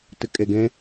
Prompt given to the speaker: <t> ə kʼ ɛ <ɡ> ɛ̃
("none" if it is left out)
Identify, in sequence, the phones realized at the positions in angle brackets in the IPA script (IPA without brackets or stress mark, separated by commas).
t, ɡ